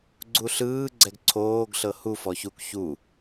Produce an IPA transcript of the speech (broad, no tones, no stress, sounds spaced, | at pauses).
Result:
ɡ͡ǀ u ɬ ɯː ɡ͡ǀ ɛ ɡ ǀʰ oː ɡ ɬ ɤ h u f ɔ ç u k ç u